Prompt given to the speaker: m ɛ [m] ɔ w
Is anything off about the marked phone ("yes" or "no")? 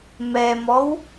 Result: no